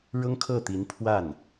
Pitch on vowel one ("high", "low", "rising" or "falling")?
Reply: high